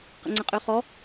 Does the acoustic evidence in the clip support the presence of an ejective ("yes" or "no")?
yes